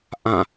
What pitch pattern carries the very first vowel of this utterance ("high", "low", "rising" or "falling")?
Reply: falling